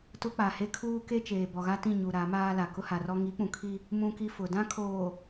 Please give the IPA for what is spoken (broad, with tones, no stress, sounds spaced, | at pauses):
t ʊ˦ k͡p a˨ h e˦ kʰ uː˦ k e˦ t͡ʃ eː˨ b ɔ˨ ɣ a˦ t ĩ˦˨ ɲ u˨ ɾ a˨˦ m aː˦ l a˨ k ʊ˦ h a˨ r ɔ˦ ŋ i˨˦ k͡p ũ˨ kʰ i˦ | m ũ˦ k i˦ f ʊ˨ d ã˦ kʰ oː˨